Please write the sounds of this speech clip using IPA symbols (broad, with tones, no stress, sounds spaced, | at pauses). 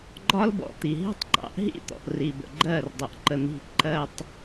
ɡ͡ǃ ɒ˦ l b ɔ̰˨ t̪ i˨ ɦ i̤˦ tˤ ǃ ɑ̰˨˦ ʔ ɦ ḭ˦˨ t̪ ɔ̰˨ ʔ r i˨ b ə̰˨ ɡ͡ǃ ɜ˦˨ r dˤ ʊ˨ ʔ ǃ ə˨ n̪ i̤˨ ǃ ɜ˨ tˤ